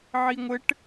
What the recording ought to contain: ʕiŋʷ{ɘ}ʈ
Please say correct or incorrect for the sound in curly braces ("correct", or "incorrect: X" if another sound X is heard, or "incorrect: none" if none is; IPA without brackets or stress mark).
correct